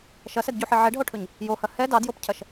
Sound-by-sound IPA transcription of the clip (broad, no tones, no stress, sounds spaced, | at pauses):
ʃ ɐ s ɛ d ɟ u ħ e ʕ ɛ ɖ ɦ o ʈʰ ɵ ɲ | j o h ɐ h ɛ d ɑ d j o p cʰ ɐ ʃ